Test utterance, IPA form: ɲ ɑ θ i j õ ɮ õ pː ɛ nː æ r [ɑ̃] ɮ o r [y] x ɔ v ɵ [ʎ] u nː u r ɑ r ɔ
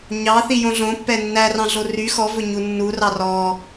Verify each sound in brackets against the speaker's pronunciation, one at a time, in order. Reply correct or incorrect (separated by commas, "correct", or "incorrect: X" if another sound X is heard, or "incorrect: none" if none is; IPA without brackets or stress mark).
correct, correct, incorrect: ɲ